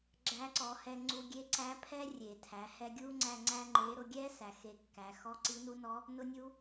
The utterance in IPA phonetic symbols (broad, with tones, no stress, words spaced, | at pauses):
ɡ͡ǁæ˧˥ǀɔ˩˧hɛ˧ŋ͡ǀu˧ ɡʲe˧˥ǀæ˧˥pʰɛ˥ rʲe˩tʰæ˩˧ hɛ˧ɡʲu˥ŋ͡ǀæ˧ ŋ͡ǀæ˥ŋ͡ǃe˧˥ ɾʊ˧ɡʲɛ˥ sæ˩xe˧˥kːæ˩˧ xɔ˧˥ǀi˧˥nu˧˥nɔ˧˥ | nʊ˥nʲu˥